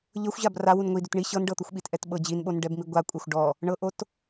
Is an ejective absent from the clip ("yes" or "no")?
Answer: no